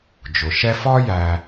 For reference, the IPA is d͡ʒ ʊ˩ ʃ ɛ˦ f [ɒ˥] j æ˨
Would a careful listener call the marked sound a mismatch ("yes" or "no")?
no